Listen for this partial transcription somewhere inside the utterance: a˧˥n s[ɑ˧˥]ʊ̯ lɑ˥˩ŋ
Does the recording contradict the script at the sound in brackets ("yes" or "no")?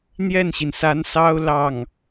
yes